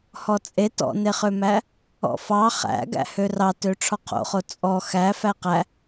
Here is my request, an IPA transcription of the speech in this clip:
h ɔ t͡sʼ e t ɔ̰ n e χ ø m æ | ɔ̰ f ɑ χ æ̰ ɡ æ̰ h ø r ɑ t ø ʈ͡ʂʰ ɔ qʰ o̰ χ o t͡sʼ ɔ x æ f æ q æ

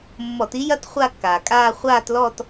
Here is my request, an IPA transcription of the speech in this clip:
mː ɔ˧˩˧ t i˦˥ j ɐ˦˥ t χʷ a˥˧ kː aː˩ kʼ aː˥˧ χʷ aː˥˧ t l ɔ˥˧ t

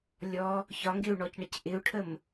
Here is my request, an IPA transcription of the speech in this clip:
lʲ ɔ | ç ɒ ŋ ɡ ɪ u̯ ɳ ɔ c ɳ ə c ʔ ɪ u̯ ʈʰ ə m

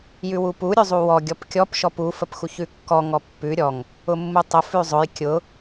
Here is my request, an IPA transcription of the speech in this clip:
j ʉ w u p u ɾʲ ʉ zˤ u w ɔ ɡʲ ɔ p kʲ ɔ p ʃ ɔ p u f ə p x u ç ʉ kː ɔ ŋ ɔ pː ʉ ɾʲ ɔ ŋ | ʊ mː u tˤ ʊ f ʉ zˤ ʊ j kʲ ʊ

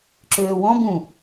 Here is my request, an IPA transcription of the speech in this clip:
ǁ øː w ɔ̃ b ũ

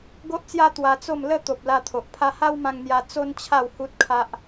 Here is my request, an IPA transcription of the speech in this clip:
ɡ o˦ ʔ t͡s j a˦ t̪ w a˧ t͡s o˥˧ m l ə˥˧ t̪ o˨ p̚ l a˧ t̪ʰ o˨ ʔ pʰ a˦ h a˦ w m ã˧ ŋ n̪ j a˧ t͡s o˦ n t͡ɕʰ a˥˧ w h u˦ t̚ kʰ a˦ ʔ

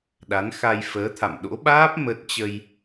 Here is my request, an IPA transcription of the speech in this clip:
ɗ a˨˦ n x a˧ j f əː˨˦ t̪ʰ a̰˧˨ m ɗ o̰˧˥ ɓ aː˦˥ p̚ m ə˦˥ t̚ t͡ɕ ə˧ j

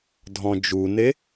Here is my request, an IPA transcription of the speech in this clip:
dʱ ɔ̃ d͡ʒ u n e

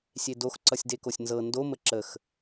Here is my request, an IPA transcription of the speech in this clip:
sʲ e d o x ǀ ʌ sʲ d e k o sʲ n z ɤ n d o m ə ǁ ə x

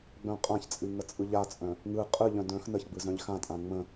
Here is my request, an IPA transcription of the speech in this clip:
ɡ͡b œ̃ qʼ ã ç t͡sʼ ɨ ŋ ə t͡sʼ ɯ ʎ a t͡sʼ œ̃ | ŋ ɯ qʼ ɯ ʎ œ̃ d œ̃ x n ə ç ɡ͡b ɯ z œ̃ ʎ x ã tʼ ã ŋ͡m ə̃

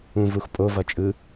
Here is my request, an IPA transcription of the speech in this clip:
ũ v u x pʼ o v ʌ t͡ʃʼ ɯ

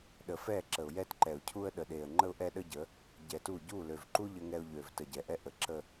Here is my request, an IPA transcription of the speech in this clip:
ɗ ə˨ f ɛ˦˨ ǁ ə˨ ʊ̯ j ɛ˦ t ǃ ɛ˨ ʊ̯ cʰ u˦ ə̯ ɗ ə˨ ɗ e˨ ə̯ ŋ͡ǃ ə˦ ʊ̯ ʔ ɛ˦ ɗ ə˦ ɟ ə˨˦ | ɟ ɛ˨ t u˦˨ ɟ u˦˨ l ø˨ v ǃ u˦ ʎ ə˦ ŋ ɛ˦ ʊ̯ ʎ ø˨ v t ə˨ ɟ ɛ˨ ʔ ɛ˦ ʔ ə˨ ǁ ə˦

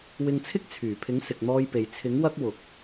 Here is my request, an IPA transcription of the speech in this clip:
w ɪ˧ ŋ t͡sʰ ɪ˥ k̚ t͡sʰ yː˨˩ pʰ ɪ˨˥ ŋ s ɪ˨ k̚ n̪ ɔː˧ j p e˨ j t͡sʰ ɪ˨˥ ŋ w ɐ˥ k̚ w ʊ˨ k̚

